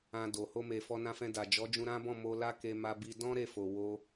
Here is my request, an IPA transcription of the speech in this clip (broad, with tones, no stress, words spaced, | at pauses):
ã˧do˨ ho˧me˨ fɔ˧nã˧fɛ̃˧ da˨d͡ʒɔ˨˦d͡ʒũ˧ ɾã˦bɔ̃˦˨ mo˧la˦ ke˧ ma˧bi˧ dɔ̃˦ ɾe˦˨fo˨ wo˧